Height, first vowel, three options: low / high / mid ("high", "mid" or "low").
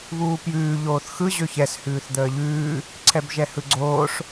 high